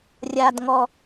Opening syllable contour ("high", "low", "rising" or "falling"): high